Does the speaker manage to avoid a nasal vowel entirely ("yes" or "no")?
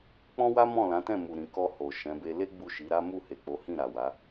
no